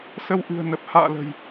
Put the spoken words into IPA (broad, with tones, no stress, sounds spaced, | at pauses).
s ə˧ w ʔ ɨ̤˨˩ ə̯ n ə˨˩ p̚ h a̰ː˧˨ l ə̤˨˩ j